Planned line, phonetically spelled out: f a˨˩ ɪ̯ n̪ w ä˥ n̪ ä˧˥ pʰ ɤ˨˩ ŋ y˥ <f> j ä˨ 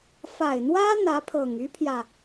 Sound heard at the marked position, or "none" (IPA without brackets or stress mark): pʰ